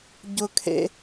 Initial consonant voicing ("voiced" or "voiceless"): voiced